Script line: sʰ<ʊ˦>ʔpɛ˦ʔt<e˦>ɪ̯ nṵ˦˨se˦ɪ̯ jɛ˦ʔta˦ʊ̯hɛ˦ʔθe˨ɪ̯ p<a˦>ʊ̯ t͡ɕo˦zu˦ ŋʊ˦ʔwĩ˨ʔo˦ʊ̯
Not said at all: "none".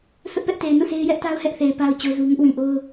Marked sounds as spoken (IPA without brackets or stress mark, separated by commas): ʊ˦, e˨, a˦